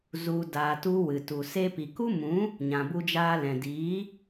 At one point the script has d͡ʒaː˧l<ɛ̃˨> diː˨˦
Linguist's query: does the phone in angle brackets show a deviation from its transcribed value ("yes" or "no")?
no